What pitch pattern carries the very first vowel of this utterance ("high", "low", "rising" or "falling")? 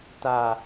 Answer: low